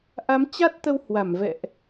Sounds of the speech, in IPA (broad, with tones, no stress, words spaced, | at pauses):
ʔa˨˦mt͡ɕa˦˥t̚t̪ə˧whwa˧˩m vɛ̰˧˨ʔ